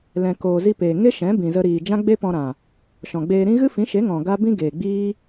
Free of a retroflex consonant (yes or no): yes